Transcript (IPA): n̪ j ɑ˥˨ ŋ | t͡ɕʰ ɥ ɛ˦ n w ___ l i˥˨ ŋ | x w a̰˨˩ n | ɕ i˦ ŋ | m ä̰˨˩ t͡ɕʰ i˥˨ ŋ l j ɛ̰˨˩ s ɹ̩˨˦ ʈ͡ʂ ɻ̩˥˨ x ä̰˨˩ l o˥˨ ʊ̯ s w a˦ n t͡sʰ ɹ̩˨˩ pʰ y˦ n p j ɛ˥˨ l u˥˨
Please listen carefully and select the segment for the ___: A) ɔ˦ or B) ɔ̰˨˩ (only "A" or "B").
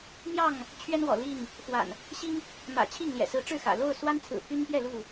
B